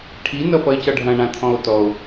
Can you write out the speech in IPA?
ʈʰ i n ʌ f ʌ e̯ c ʌ ɖʱ ɐ̃ ɳ ã t̪ʰ ɔ̃ o̯ t ɔ o̯

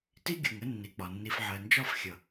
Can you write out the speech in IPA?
t i˦ ɡʲ u˨ ŋ ə˦ nː i˨ k͡p ɒ˨ nː i˨ f ʕ ɜ˨ n d͡ʒ ɒ˦˨ f xʲ ʌ˨

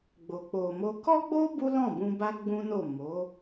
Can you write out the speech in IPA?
ɡ͡b o˨ k͡p o˨ m o˧ k ɔ˦ ɡ͡b o˦ b u˦ l ɔ̃˦˨ b ũ˧ b a˧ ɡ͡b ũ˦ n o˦˨ m o˨˦

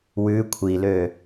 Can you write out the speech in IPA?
w ʉ kʷʰ i l ø

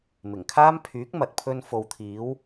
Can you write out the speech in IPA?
m ɪ˨˩ ŋ kʰ aː˥ m pʰ yː˨˥ k̚ m ɐ˨ t̚ pʰ ɵ˧ n f o˨ w t̪ʰ iː˨˥ w

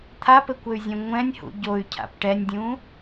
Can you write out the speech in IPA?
t̪ʰ a p ɘ kʷ ɘ y̯ zʲ ɛ̃ ŋʷ ɛ̃ nʲ h ṵ ɟ o y̯ cʰ a̰ p ʈ ɛ nʲ dʲ ũ

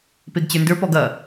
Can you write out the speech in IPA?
p e ɡ t͡ɕ ə˞ n d ə˞ p ɔ ɡ ɐ

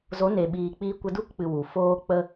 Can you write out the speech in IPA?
z o˨˦ n e˨ ɓ iː˨ k͡p iː˧ kʷ ə˧ d u˦˨ k k͡p ɨ˨ w u˨ f oː˦ k͡p ə˦

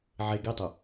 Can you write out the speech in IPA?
ʕ e ɡ i tˤ ɯ

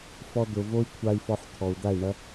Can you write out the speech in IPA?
f ɔ˧ d̪ ʊ˨ v o˦ i̯ kʷʰ a˧ i̯ f ɔ˧ ħ t̪ʰ ɔ˨ u̯ d̪ a˦˨ i̯ ɳ ɐ˦

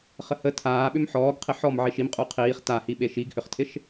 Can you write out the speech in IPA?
χ ə h ə tʰ aː ɓ ʏ m ħ ɔː ɡ qʰ ɪ ħ ɔ m ʕ i ʃ i m qʼ u qʰ iː χ t a h i ɓ e ʃ i ɡ h ʏ χ tʰ ɪ ʃ

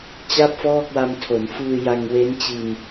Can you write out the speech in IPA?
t͡ɕ a˥˩ p̚ f ɔː˥˩ k̚ w a˧ m tʰ o˩˦ n f ɯː˧ j a˧ ŋ w e˦˥ n t͡ɕ i˧ n

